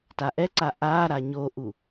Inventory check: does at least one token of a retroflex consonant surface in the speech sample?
no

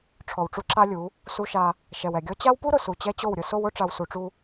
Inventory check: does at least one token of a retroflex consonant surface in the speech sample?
yes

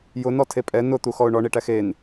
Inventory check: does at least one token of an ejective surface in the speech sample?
yes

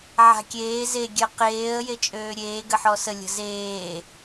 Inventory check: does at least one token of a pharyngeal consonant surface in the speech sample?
yes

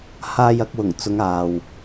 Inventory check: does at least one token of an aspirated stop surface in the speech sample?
no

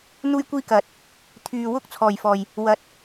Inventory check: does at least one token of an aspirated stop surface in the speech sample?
yes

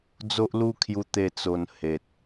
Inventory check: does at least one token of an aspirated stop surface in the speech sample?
yes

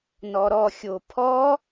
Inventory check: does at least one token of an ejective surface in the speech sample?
no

